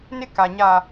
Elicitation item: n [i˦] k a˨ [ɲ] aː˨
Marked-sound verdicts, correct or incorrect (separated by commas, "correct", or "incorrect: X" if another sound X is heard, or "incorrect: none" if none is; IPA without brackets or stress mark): incorrect: ɪ˦, correct